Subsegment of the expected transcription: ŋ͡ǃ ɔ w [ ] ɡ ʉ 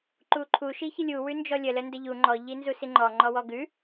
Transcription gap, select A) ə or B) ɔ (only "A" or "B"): B